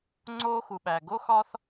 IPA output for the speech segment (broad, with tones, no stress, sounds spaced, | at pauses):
ŋ͡ǀ oː˥ x u˩ ɓ æ˩ ɡ o˥ x ɒ˥ θ